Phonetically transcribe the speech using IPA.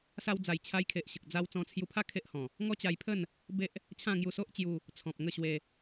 sa˧wd͡za˨˩jt͡ɕʰa˧j kʰe˨ʔɕə˨k̚d͡za˧w t͡sɔ̃˧t͡sʰju˧pʰa˥˧ kʰe˦ʔhɔ̃˨˩ | ŋɔ˦t͡ɕa˧jpʰə˥˧n | be˦ʔ | t͡ɕʰã˥˧ŋju˧so˦ʔt͡ɕju˧ | t͡sʰɔ̃˨p̚ŋə˥˧ ɕwe˧

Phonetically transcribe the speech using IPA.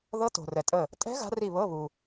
ðɤ˦˥to̤˨rɛ˨tʼə˦˨ | tʼɛ̤˦˥ ɣa̤˦˥ri˦˨βɤ˧˥˧ βu˨

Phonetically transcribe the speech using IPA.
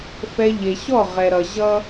fɛ˦ ʎe˨ɕɔ˦˨ʁɛ˨ɾʌ˨ ʑʌ˧

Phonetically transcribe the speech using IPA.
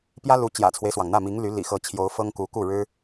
pjä˥lu˧˥ t͡ɕjä̰˨˩t͡sʰwe˦ɪ̯swɑ˩ŋn̪ä˥˩ mi˧˥ŋ ly˧˥ lḭ˨˩xɤ˧˥t͡ɕʰjo˧˥ʊ̯ fɤ˥ŋku˧˥ ku˥˩ɻɻ̩˥

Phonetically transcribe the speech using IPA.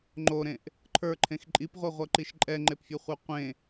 ŋ͡ǃoɾẽʔ | ǃʰə˞ǃʰẽx ǃʼipʁʷiʁʷɜǃiʃ ǃʼɛŋ͡ǃepfʲɜχʷə˞ qʷẽ

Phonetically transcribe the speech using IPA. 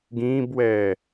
ɡĩːbwɛː

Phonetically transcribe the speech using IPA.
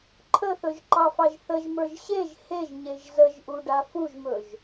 ǃʰəθɵʒǃɑfɑʒ θəʒmə˞ʒ ɕeʒ heʒɲeʒ zəʒʔuɖa fuʒmɵʒ

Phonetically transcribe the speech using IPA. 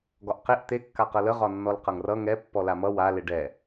ɡɒʔqeʔ t̪e kːaqɤlə ʁɒnːɔlqʌŋrʌ ŋɛ pːɔlamʌ wa leɖɛ

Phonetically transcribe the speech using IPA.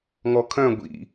ŋɔkʰœ̃ ɡʷḭ

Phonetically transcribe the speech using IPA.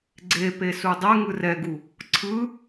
ɡ͡ǀepesu dˤɛŋɯ rɛɡu | ǀʰɯ

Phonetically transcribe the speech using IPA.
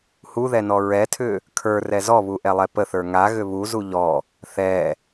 huðɛnɔ ɹɛtʰʏ | kʰə˞rɛ zɔβuʔɛlˠɛ pəθə˞ ŋaɣʏ βuzu ʎɔ | θɛ

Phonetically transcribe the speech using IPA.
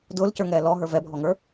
dʊːlcə˞ŋɛː lɔɦə˞ vɛbʱɔŋə˞

